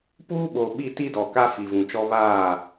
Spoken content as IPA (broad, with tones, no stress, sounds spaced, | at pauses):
p uː˦ ɓ o˨ ɓ i˦˨ t i˦ d ɔ˨ k a˦ f i˨ v ũ˨ t͡ʃ ɔ˦ β aː˦˨